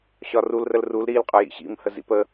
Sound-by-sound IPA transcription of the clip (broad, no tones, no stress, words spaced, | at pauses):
ɕɒrul rəlrul ɾil qʼə˞jḭɕḭm həzḭpə